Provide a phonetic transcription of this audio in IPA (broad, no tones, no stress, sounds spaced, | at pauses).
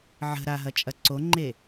ʕ ə̤ ɾ a ɦ ɐ t͡ʃʼ ɐ ǀ o ŋ͡ǃ e